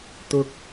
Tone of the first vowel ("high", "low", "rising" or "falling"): high